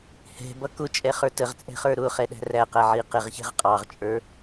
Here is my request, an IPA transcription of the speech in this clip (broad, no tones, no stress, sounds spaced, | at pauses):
h ɛ̤ b ʌ k ʊ t͡ʃʼ ɛ χ ə˞ t ə ʁ t͡sʼ ɛ̤ χ ə˞ ɾ ʊː χ ɛ ɗ æ̤ r æ q æ ʕ i q ɪ ʁ ç ɛ̤ ʁ qʼ ɑ ʁ t͡ʃʼ ə˞